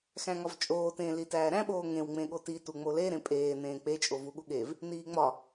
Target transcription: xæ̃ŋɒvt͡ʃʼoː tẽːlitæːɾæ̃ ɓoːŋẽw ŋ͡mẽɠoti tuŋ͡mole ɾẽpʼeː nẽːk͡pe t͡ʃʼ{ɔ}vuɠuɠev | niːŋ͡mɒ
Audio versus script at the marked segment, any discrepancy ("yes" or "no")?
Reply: yes